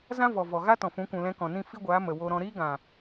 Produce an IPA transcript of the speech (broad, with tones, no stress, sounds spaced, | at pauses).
z ã˦ v ɔ˨ v ɔ˨ ɣ a˦ t ɔ̃˨ f ũ˨˦ kʷ ũ˨ l ɛ̃˧ k ɔ̃˨ n ĩ˦˨ f i˦ ɡʷ aː˨˦ m ə˨ w o˧ ɾ ɔ̃˧ ɾ iː˦ ɡ ã˨